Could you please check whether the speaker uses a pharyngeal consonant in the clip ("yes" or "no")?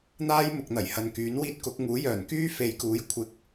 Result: no